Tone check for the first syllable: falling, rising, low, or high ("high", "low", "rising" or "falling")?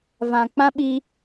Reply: low